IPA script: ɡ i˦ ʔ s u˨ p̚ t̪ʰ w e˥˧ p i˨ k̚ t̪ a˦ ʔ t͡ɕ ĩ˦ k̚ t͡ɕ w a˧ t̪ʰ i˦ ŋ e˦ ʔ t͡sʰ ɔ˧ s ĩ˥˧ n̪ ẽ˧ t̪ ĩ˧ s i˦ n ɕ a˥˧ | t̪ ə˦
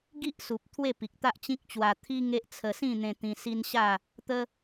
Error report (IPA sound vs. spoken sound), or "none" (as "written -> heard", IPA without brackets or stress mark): ɔ˧ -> ə˧